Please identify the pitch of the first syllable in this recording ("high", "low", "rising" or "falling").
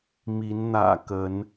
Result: rising